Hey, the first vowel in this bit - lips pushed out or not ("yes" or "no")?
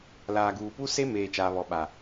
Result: no